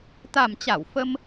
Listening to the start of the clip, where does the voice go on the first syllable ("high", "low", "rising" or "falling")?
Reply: low